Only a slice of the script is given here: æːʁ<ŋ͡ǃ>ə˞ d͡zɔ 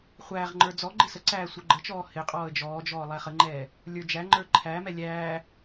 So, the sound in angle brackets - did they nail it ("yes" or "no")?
yes